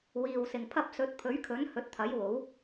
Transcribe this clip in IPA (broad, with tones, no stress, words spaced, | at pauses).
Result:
wiː˨wsɪ˨ŋpʰɐ˧p̚ sɵ˨˥t̚pʰɵ˨˥ɥkʰɵ˨˥n hɵ˨˥t̚t̪ʰɐ˨˥jwo˨˥w